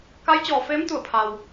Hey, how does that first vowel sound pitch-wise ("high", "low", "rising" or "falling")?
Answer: rising